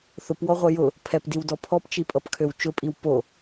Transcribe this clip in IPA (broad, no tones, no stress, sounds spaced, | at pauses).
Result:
θ ʊ p w ɔ ʁʷ ɛ j ʊ | pʰ ɛ p d i w d ɔ pʰ ɔ p t͡ʃ i pʼ ʌ p kʰ ø w t͡ʃ ʊ pʼ i w p o